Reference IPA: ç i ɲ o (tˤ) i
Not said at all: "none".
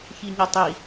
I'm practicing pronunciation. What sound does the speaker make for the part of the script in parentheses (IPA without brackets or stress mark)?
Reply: tˤ